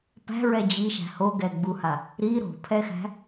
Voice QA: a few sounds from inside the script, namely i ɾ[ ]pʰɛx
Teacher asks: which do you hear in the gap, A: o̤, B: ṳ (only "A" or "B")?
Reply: A